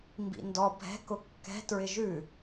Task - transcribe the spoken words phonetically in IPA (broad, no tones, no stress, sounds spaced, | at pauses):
m b ḭ n d ɔ bʱ ɛ̤ k ʊ kː ɛ̤ t ɹ ɪ ʒ ʉ